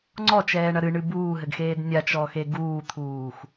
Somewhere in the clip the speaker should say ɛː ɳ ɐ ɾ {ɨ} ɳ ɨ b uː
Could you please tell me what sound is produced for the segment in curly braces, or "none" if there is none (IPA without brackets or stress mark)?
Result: ɨ